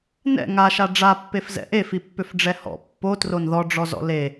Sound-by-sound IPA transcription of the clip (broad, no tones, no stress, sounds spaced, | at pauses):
n ɛ̰ ŋ a ʃ a ɖ͡ʐ a pː e f z ɛ̰ ʔ e f i pː ʏ f ɖ͡ʐ ɛ h ɔ̰ pː o t r o n ð ɔ ɖ͡ʐ ɔ z ɔ̰ l e